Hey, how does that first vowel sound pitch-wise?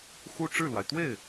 high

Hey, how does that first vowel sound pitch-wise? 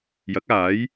rising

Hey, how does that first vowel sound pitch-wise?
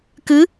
rising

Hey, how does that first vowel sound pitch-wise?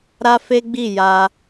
high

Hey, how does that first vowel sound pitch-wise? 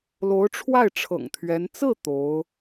rising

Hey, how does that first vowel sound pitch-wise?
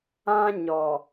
high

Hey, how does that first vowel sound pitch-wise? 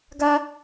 high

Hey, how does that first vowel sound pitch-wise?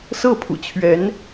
falling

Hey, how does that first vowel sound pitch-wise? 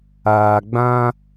low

